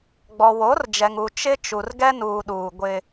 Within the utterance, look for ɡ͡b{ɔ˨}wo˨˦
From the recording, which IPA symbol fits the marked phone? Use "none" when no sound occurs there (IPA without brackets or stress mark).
ɔ˨